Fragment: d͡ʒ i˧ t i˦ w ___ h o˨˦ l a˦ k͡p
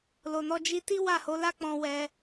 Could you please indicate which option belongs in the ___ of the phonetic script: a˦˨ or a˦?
a˦˨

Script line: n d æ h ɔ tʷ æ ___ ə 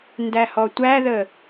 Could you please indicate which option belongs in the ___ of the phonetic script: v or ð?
ð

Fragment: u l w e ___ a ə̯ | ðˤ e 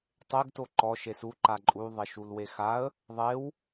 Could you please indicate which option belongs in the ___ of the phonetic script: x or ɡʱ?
x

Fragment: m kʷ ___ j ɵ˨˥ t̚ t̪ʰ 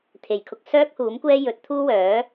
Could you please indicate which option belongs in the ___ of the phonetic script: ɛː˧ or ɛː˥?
ɛː˥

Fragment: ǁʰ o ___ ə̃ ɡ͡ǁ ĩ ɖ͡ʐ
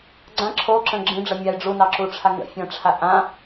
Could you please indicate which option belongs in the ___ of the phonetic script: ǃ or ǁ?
ǁ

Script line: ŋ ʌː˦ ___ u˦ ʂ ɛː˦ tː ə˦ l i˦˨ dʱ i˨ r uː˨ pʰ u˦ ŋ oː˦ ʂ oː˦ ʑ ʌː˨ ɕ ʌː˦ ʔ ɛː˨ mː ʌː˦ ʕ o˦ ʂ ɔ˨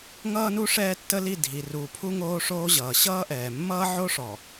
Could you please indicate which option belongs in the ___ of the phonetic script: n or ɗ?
n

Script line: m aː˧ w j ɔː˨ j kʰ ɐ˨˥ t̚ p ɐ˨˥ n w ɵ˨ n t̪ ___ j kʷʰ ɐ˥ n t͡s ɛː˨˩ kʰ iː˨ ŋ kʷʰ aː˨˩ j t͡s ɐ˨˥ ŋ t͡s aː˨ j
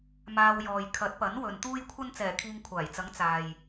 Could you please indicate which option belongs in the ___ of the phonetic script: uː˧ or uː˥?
uː˥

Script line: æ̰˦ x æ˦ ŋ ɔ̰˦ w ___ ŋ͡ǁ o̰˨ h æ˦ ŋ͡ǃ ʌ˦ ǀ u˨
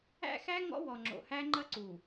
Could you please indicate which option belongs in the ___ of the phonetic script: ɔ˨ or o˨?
ɔ˨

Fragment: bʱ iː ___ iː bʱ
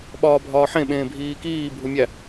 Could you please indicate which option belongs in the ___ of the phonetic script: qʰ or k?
k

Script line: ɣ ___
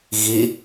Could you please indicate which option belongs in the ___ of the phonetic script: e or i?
i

